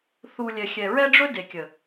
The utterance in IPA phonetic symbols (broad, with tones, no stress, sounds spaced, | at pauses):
θ u˧ lʲ ɛ˨ xʲ ɛ˨ ɹ ɛ˦ ɖ͡ʐ ɵ˦ d e˨ kʲ ə˨